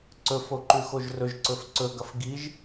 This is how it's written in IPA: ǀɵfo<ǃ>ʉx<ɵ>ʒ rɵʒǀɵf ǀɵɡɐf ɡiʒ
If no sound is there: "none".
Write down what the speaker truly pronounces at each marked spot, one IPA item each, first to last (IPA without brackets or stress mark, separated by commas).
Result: ǃ, o